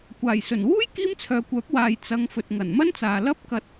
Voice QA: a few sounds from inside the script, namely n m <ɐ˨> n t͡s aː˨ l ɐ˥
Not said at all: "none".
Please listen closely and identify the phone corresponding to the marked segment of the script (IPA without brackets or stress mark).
ɐ˥